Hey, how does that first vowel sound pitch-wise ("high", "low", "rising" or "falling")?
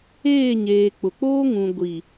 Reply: falling